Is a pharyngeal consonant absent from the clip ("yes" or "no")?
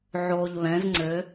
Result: no